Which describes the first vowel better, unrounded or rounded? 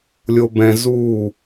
rounded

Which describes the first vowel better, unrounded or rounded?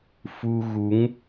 rounded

